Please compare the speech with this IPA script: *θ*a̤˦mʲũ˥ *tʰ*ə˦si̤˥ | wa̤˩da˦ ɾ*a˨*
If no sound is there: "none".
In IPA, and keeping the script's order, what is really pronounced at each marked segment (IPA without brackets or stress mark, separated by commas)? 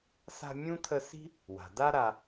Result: s, tʰ, a˨